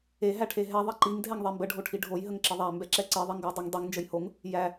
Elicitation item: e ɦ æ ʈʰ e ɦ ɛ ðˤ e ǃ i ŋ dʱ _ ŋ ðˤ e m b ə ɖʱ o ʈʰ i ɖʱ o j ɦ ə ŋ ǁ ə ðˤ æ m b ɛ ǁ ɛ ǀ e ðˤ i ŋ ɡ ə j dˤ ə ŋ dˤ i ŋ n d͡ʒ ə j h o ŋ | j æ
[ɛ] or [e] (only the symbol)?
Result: ɛ